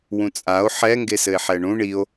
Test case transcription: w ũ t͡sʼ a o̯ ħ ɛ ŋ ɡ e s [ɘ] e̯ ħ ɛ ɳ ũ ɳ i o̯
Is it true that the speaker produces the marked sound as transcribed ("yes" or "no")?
yes